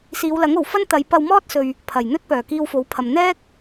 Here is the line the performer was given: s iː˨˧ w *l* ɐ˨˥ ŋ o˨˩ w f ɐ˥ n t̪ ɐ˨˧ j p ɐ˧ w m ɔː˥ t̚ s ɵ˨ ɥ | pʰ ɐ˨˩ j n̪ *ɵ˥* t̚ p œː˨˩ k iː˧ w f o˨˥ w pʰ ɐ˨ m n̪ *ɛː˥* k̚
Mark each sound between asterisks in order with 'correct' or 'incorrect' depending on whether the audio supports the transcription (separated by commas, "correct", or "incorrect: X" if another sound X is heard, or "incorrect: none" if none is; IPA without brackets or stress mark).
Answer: correct, correct, correct